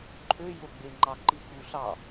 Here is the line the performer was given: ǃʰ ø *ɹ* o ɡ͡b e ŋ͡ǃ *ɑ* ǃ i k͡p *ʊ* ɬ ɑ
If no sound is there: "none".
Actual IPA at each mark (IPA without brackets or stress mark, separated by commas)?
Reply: j, ɑ, u